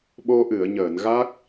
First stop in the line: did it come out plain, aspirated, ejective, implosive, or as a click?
implosive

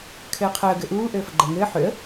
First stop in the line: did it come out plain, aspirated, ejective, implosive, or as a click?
aspirated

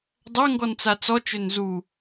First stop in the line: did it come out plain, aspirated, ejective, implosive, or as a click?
plain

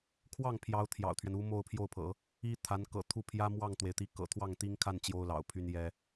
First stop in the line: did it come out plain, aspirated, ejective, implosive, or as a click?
aspirated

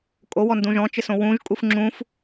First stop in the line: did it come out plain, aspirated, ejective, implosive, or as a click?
ejective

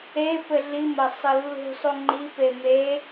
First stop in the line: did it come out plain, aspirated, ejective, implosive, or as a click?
plain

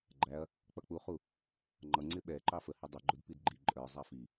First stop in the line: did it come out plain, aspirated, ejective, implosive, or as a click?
click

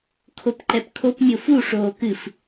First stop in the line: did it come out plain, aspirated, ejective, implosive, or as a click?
aspirated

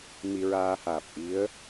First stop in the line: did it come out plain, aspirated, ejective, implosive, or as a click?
plain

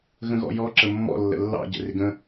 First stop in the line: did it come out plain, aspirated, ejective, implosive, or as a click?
click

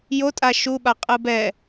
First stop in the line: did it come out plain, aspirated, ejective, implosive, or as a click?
ejective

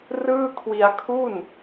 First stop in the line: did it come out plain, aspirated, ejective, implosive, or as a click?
aspirated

